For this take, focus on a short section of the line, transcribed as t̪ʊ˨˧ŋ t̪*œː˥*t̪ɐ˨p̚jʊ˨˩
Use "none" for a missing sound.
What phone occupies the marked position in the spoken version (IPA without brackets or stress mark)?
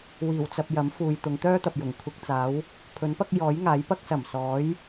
œː˥